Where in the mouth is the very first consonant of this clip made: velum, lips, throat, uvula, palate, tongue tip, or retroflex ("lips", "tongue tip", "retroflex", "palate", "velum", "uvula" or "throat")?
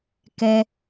velum